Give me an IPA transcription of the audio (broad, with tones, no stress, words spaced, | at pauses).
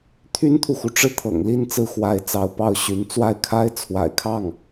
t̪ʰy˥nt̪ʰu˨xu˩ʈ͡ʂɻ̩˥˩ t̪ʰɤ̰˨˩ŋli˥˧n t͡sɹ̩˥˩xwa˧˥ɪ̯t͡sɑ˧˥ʊ̯ pɑ˥˩ʊ̯ɕy˧˥n t͡swa˥˩ɪ̯kʰa˥ɪ̯t͡sʰwa̰˨˩ɪ̯kʰɑ˥˩ŋ